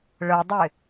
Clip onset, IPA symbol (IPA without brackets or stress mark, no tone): ɭ